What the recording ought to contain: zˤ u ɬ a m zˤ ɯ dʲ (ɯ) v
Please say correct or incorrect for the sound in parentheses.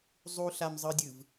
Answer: correct